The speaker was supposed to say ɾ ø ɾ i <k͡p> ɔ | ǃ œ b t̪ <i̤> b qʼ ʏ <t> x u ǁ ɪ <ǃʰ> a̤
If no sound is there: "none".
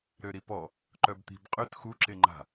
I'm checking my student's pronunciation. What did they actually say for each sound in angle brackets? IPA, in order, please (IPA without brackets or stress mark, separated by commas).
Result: p, i̤, t, ŋ͡ǃ